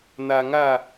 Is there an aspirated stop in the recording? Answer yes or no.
no